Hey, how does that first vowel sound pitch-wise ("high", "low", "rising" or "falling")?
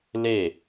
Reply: falling